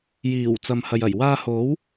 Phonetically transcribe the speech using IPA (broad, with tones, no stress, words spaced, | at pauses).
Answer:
jiː˨˩wt͡sɐ˨m hɐ˨jɐ˨˩j waː˧ho˨˥w